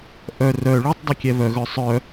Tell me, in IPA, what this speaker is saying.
ʔ œ r œ ɭ u tˤ dˤ ɛ kʲ ɛ β œ ɣ œ sˤ œ

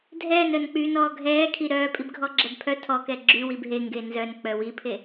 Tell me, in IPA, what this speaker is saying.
dʱ ɛː n œ n k͡p yː n ɔː ɡʱ ɛː kʰ i ɾ œː pʼ i b ɡʱ ɔ ɡ͡ǁ ɛ b pʰ œ tʰ ɔ k ɛ ɡ͡ǁ y w i b ɦ e ŋ ɡ e n z œ n k͡p œ w i pʰ e

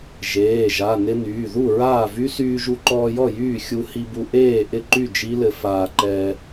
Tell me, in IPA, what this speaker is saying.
ʒ eː˩˧˩ ʒ a˩˧˩ n ɪ˧ n yː˩˧˩ ð u˥˩ ɹ aː˥˩ v y˦˥ s yː˧ ʒ u˧ ǃ ɔː˧ j ɔ˥˩ j yː˥˩ xʲ u˧ h i˧ b u˧ ʔ eː˥˩ ʔ ɪ˥˩ ǃ y˥˩ d͡ʒ i˦˥ l ɘ˧ f aː˧ ǃ ɛː˧

